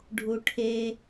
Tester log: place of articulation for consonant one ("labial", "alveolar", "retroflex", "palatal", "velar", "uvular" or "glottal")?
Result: retroflex